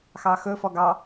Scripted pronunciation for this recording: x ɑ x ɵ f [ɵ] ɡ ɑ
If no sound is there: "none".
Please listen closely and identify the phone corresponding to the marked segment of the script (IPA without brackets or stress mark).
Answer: ɔ